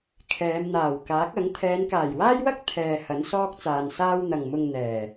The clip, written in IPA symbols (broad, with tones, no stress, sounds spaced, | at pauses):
kʰ ɛː˨˧ m n̪ aː˨˩ w k aː˨˥ k̚ ɐ˨˥ ŋ t̪ʰ ɛː˨˧ n k aː˨˩ j w aː˥ j w ɐ˥ k̚ t̪ʰ ɛː˨ h ɐ˨˥ n s ɔː˥ k̚ t͡s aː˨ n s aː˥ w n̪ ɐ˨ ŋ m ʊ˧ ŋ n̪ ɛː˨˩